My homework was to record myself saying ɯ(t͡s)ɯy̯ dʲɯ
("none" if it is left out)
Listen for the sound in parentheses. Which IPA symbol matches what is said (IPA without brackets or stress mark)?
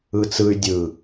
t͡s